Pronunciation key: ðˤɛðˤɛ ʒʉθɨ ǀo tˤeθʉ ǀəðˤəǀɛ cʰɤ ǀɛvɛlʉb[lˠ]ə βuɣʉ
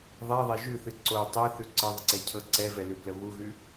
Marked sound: incorrect: l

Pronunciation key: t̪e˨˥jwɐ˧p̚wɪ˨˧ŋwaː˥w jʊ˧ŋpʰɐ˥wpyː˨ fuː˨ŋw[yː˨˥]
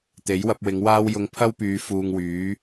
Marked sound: correct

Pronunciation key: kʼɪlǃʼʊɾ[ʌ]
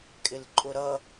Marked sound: correct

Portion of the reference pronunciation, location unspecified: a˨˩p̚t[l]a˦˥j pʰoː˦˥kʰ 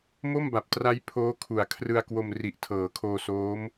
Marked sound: incorrect: r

